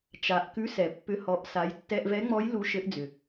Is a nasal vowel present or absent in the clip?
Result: absent